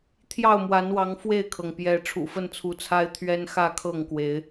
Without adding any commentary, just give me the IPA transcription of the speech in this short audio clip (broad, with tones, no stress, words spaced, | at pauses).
t̪ʰjɑ˥˨ʊ̯mwa˨˦nwɑ˨˦ŋ fwe˥˨ɪ̯kʰɤ˩ŋ pjɛ˨˦ ʈ͡ʂʰṵ˨˩fə˥˨nt͡sʰu˨˦t͡sʰa˦ɪ̯ t̪ʰɥɛ˦nxä˥˨kʰɤ˥˨ŋkwe˨˦ɪ̯